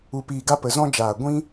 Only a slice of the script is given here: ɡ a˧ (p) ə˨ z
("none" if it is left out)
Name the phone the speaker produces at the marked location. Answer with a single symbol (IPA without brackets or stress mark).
p